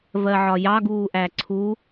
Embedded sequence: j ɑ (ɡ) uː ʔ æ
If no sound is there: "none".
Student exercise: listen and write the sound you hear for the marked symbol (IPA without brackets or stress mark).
ɡ